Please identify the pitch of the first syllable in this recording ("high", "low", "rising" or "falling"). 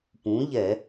rising